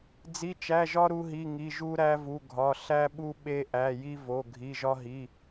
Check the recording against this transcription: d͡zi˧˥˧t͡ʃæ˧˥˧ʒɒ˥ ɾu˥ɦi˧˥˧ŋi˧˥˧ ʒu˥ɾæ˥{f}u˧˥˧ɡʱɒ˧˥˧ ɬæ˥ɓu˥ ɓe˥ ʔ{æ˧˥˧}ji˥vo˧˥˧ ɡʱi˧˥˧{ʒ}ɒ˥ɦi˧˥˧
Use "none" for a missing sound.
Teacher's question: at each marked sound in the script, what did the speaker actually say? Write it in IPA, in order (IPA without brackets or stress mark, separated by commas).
v, æ˧˥˧, ʒ